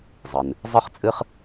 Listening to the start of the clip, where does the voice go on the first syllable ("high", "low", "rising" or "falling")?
low